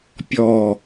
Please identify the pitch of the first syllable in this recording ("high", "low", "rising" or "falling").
low